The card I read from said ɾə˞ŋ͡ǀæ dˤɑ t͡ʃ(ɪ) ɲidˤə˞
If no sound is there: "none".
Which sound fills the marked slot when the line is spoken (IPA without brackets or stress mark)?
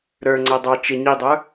ɪ